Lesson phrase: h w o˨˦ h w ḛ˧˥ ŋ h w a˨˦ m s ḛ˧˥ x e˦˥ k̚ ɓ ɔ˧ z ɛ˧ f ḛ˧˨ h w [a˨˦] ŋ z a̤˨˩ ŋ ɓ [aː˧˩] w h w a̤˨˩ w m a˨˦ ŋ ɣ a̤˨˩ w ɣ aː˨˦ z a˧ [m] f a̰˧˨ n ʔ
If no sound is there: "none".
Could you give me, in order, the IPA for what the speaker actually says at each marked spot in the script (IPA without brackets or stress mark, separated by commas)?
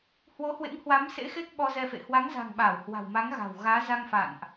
a˨˦, aː˧˩, ŋ